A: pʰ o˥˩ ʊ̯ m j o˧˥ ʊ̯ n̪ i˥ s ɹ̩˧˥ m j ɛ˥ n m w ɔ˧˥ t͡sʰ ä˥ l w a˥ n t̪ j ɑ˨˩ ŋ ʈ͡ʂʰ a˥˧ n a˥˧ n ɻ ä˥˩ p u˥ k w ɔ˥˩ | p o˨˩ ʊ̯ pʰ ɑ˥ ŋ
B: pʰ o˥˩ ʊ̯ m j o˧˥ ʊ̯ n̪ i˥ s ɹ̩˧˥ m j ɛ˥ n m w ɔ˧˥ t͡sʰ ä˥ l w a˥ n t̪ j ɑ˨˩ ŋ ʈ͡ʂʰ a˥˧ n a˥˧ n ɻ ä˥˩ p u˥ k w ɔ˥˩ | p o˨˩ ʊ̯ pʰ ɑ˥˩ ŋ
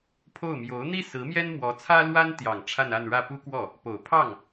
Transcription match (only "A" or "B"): B